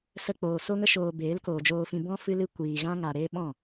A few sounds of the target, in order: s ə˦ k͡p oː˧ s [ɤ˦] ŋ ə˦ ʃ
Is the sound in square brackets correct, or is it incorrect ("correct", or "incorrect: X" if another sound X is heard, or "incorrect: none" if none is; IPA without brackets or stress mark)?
incorrect: o˦